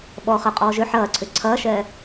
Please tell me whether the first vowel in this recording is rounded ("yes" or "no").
yes